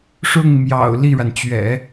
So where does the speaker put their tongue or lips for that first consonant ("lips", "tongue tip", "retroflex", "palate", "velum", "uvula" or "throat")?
retroflex